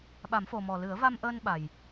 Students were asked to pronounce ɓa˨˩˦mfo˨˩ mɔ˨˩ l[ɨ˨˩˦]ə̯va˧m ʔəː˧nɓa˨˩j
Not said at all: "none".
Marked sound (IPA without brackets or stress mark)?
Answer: ɨ˨˩˦